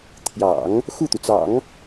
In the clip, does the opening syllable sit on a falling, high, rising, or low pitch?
low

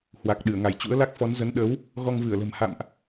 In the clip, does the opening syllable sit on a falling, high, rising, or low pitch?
low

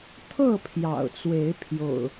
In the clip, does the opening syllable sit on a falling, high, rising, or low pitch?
falling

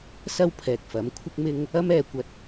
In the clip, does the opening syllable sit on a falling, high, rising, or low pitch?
high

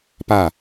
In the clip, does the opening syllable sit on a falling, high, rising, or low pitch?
falling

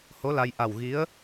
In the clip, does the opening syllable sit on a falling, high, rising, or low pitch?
rising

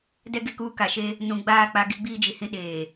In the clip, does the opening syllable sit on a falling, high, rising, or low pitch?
high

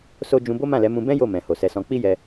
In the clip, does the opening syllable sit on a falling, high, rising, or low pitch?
high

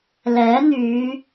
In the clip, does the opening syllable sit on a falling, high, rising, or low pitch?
rising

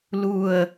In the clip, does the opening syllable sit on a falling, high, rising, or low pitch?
low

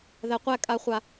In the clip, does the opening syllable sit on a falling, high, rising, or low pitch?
low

